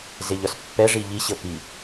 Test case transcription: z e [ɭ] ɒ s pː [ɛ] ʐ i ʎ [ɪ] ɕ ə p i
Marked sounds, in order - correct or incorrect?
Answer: incorrect: ʎ, correct, incorrect: i

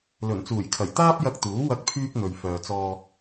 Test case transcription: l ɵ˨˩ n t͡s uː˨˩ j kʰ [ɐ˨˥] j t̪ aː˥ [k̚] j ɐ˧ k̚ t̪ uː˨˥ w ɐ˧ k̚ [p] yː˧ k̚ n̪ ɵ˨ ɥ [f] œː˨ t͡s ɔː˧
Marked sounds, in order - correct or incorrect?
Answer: incorrect: ɐ˨˩, incorrect: p̚, incorrect: pʰ, correct

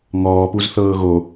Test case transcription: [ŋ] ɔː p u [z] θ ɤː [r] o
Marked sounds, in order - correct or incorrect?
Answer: correct, correct, incorrect: ɣ

